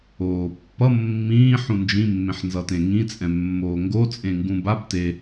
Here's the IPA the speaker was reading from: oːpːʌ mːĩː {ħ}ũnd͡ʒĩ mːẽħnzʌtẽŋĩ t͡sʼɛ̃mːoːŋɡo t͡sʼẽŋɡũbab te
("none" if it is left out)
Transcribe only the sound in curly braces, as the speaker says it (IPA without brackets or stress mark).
ħ